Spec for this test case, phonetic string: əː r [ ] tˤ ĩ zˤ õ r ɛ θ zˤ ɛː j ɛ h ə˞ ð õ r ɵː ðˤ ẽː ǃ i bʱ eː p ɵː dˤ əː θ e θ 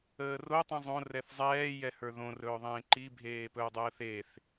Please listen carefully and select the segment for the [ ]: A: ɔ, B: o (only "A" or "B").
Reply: B